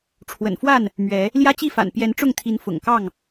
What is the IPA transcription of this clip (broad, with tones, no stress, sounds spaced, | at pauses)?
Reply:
ʈ͡ʂʰ w ə̰˨˩ n f w a˥˨ n | m ɥ ɛ˨˦ | l j ä˦ t͡ɕ i˥˨ f a̰˨˩ n p j ɛ˨˦ n ʈ͡ʂ ʊ˥˨ ŋ t̪ʰ i˨˦ n f ʊ̰˨˩ ŋ k ɑ˥˨ ŋ